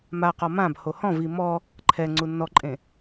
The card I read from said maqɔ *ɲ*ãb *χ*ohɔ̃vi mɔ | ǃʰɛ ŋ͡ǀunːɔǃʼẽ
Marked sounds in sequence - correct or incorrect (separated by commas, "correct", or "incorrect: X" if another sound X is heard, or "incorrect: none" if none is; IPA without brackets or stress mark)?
incorrect: m, incorrect: h